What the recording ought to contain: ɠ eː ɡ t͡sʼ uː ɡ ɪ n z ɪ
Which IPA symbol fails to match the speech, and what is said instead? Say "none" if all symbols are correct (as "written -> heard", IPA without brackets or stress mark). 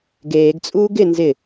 ɠ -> ɡ